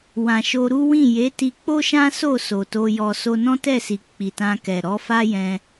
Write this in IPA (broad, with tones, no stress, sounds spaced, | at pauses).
w ã˨ ʃ o˧ ɾ u˦ w ĩ˦˨ j e˨˦ t i˧ k͡p o˦ ʃ ã˦ s o˦˨ s o˨ t o˧ j ɔ˧ s o˧ n ɔ̃˦ t ɛ˦˨ s i˨ k͡p i˨ t ã˧ k ɛ˨ ɾ ɔ˨˦ f a˦ j ɛ̃˧